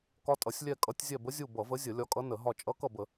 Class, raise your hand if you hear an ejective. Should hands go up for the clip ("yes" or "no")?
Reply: yes